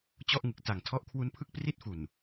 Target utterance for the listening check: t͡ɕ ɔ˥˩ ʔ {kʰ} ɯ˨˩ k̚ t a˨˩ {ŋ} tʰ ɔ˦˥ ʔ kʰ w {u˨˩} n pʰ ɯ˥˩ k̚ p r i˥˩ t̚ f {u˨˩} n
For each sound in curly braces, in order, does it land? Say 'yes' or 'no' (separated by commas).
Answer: no, yes, no, yes